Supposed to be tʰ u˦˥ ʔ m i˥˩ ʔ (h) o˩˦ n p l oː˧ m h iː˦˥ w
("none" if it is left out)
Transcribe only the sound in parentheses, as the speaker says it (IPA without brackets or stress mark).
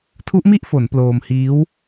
f